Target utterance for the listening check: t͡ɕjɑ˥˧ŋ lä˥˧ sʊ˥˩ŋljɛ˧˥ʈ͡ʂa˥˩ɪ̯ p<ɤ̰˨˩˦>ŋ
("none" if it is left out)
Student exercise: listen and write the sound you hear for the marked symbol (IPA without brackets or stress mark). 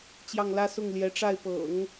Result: ɤ̰˨˩˦